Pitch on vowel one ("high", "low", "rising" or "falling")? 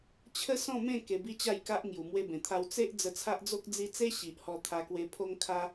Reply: high